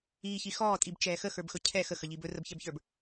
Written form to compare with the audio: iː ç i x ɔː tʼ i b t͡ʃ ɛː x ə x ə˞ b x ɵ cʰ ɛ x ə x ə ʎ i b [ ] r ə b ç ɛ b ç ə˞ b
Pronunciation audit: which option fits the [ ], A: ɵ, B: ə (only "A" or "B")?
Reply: A